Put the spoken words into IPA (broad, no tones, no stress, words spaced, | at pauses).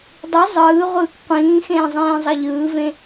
dˤi zˤɯː ʁʷɯːkqʷĩːxẽː zˤẽːzˤʌʎɯːvẽ